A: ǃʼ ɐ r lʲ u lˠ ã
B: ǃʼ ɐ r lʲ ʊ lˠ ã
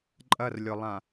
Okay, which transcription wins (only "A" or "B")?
B